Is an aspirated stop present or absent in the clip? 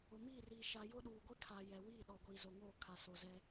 present